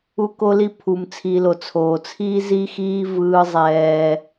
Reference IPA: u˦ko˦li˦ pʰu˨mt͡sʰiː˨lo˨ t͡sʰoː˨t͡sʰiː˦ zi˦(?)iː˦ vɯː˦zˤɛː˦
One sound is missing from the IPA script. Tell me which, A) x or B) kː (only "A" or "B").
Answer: A